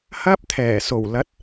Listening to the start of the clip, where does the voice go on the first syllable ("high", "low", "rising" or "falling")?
high